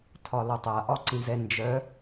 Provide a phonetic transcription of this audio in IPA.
tʰ ɒ l ɒ tˤ a ʔ ɒ ǀ ĩ z ɛ n d͡ʒ œ

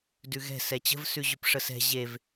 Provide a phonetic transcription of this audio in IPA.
d ʉ ɣ ɛ̤ s ɛ t͡ɕ ə̤ v s ʉ ʑ ʉ p ʂ ə s ɛ̤ ʑ e v

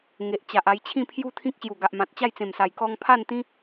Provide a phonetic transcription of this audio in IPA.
ŋ e˨ ʔ t͡ɕ a˨ ʔ a˧ j t͡ɕʰ ĩ˥˧ pʰ j u˦ t̪ʰ ĩ˦ k̚ ɕ j u˨˩ ɡ a˨ ʔ m ã˨ t̚ t͡ɕ a˥˧ j t͡s ẽ˨˩ m s a˨˩ j k ɔ˧ ŋ pʰ a˥˧ n t̪ ĩ˦

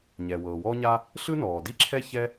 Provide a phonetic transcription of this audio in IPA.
ɲ ɛː˩ w ɤː˩ w ɔː˥ ɲ a˥ | ɬ ɯ˥ n ɔː˩ d i˥ ǁʰ ɛ˥ ç ɛ˥

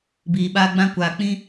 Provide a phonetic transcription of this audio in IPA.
b iː˨ ɓ aː˧ ɡ͡b ã˧ kʷ aː˨ k͡p ĩ˧

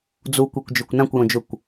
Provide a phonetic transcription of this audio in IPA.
d͡z u kʷ e kʷ d͡ʒ ø kʷ n ã kʷ j õ d͡ʒ ʊ kʷ

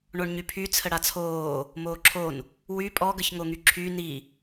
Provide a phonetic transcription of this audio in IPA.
ɳ o ɳ ɲ y pʰ y t͡sʰ ə ɽ a t͡sʰ oː | m oː ǁʰ o n | w y pʼ ɔ ɡ ə ç ŋ o ŋ y ǁʰ y n i

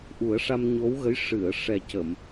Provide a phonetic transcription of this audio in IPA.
ʔ u˨˩˦ ə̯ ʂ a˧ m ɲ o˧˥ w ɣ ə˧˥ j ʂ ɨ˨˩˨ ə̯ ʂ ɛ˨˩ c ə˨˩˨ m

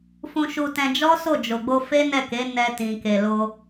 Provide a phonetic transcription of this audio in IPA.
f ũ˧ ʃ u˧ t ɛ̃˧ d͡ʒ ɔ˦ s o˦˨ d͡ʒ o˨ ɡ͡b o˧ f e˦ n ɛ˦˨ k e˨˦ n ɛ˧ t ĩ˨ k e˨ l o˧

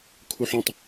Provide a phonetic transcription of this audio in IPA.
kʰ u ħ õ tˤ

